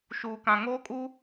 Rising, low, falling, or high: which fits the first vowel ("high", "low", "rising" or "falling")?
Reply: low